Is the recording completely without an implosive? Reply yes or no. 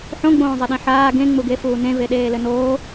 no